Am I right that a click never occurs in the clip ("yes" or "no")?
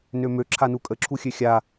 no